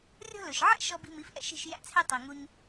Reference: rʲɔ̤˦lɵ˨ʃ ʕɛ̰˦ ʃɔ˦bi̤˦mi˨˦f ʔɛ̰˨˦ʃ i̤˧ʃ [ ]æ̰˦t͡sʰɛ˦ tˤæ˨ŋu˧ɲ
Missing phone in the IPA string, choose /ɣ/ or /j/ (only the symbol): j